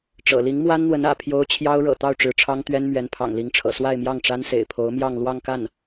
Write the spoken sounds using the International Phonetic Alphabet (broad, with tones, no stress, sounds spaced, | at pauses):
ʈ͡ʂ ɤ̰˨˩ l i˧˥ ŋ m w a˥ n n̪ w ə˧˥ n ä̰˨˩ pʰ j o˥ ʊ̯ t͡ɕʰ j ɑ˥ ʊ̯ ɻ ɤ̰˨˩ t̪ ɑ˥˩ ʊ̯ ʈ͡ʂ ɻ̩˧˥ ʈ͡ʂʰ ɑ˥ ŋ t̪ ɥ ɛ˥ n m ɥ ɛ˧˥ n pʰ ɑ̰˨˩ ŋ l i˧˥ ŋ ʈ͡ʂʰ ɤ̰˨˩ s w a˥˧ ɪ̯ m j ɑ˥˩ ŋ ʈ͡ʂ a˥ n s ḛ˨˩ ɪ̯ pʰ o˧˥ ʊ̯ m j ɑ˥˧ ŋ l w ɑ˥˧ ŋ k a˥˩ n